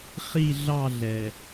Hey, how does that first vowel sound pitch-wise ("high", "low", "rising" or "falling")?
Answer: falling